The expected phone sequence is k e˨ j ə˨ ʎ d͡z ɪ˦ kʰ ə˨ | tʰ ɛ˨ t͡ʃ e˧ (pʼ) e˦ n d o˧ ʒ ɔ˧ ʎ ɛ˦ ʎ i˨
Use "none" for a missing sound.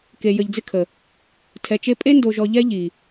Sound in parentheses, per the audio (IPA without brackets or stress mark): pʼ